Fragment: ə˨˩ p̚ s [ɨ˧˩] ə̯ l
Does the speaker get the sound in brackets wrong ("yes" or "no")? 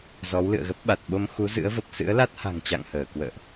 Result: yes